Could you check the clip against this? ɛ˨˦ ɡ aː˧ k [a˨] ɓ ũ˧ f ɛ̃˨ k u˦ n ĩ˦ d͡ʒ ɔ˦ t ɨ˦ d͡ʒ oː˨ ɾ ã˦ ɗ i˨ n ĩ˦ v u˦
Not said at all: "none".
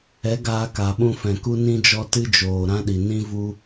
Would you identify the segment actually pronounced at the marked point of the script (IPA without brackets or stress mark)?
a˨